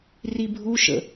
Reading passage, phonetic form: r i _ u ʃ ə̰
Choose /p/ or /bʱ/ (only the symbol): bʱ